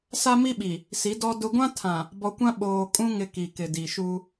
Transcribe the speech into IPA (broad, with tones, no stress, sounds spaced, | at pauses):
s a˦ m i˦ ɓ i˨ | s i˨˦ d ɔ˦ d ʊ˦ ɡʷ ã˦ tʰ ã˨ | b ɔ˨ kʷ ã˦ ɓ oː˨ kʼ ũ˦ ŋ ɪ˦ k i˨ k ɪ˨ d i˨ ʃ u˦